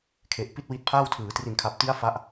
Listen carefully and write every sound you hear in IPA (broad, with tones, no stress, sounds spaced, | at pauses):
kʰ e˨˩ ʔ p i˥˩ t̚ w i˦˥ t̚ pʰ aː˥˩ w tʰ ɯː˩˦ t r i˨˩ n kʰ a˨˩ p̚ t i˦˥ a̯ f a˦˥ ʔ